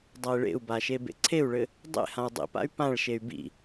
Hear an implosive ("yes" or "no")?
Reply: no